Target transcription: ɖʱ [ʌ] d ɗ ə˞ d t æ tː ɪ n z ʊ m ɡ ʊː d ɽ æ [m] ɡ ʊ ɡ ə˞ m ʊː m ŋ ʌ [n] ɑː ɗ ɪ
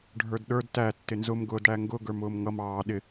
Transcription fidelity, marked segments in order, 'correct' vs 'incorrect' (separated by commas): incorrect, incorrect, incorrect